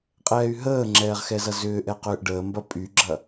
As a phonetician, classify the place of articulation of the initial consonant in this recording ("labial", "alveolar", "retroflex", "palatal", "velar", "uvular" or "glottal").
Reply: uvular